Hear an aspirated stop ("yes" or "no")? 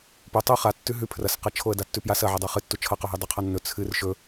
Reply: yes